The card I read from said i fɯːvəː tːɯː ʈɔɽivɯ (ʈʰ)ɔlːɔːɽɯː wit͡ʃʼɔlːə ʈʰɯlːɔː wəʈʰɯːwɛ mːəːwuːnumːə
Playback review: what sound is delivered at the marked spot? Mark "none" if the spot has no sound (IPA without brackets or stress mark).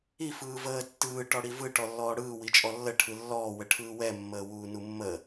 ʈ